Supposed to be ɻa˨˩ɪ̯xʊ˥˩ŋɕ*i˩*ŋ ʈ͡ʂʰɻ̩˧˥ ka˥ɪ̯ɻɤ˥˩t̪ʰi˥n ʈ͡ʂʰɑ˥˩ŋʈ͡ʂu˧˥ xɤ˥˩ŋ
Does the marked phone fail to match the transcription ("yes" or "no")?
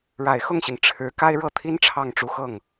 no